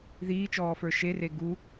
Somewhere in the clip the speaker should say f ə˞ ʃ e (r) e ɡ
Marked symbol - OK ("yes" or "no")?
yes